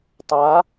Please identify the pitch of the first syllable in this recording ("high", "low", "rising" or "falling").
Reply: rising